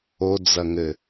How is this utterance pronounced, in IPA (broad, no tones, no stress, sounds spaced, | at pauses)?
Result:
o d͡z ɐ ŋ ɘ